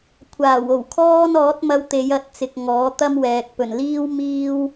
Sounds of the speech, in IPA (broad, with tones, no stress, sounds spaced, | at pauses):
kʷʰ aː˨˩ w o˨˩ w kʰ ɔː˥ n ɔː˨˥ t̚ m ɐ˧ w t̪ e˨˧ j ɐ˨˥ t̚ t͡s ɪ˨ k̚ ŋ ɔː˨˥ t̪ ɐ˥ m w ɛː˨ k̚ p ɵ˨˩ n l iː˥ w m iː˥ w